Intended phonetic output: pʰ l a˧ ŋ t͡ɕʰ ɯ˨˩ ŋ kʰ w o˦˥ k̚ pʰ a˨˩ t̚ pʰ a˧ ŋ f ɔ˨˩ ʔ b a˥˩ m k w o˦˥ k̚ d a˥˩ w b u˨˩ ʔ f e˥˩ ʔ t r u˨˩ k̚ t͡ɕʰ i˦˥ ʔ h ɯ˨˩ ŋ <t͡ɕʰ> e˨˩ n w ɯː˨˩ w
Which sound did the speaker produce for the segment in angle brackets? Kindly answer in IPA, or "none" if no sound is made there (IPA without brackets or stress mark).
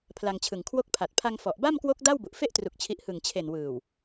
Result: t͡ɕʰ